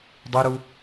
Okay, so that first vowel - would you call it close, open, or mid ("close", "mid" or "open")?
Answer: close